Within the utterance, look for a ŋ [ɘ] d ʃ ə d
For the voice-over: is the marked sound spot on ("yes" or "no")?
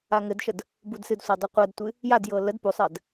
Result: yes